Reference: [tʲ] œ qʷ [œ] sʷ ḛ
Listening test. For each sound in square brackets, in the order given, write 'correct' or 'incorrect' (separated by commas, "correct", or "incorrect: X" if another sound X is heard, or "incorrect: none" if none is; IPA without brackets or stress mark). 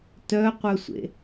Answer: incorrect: t, correct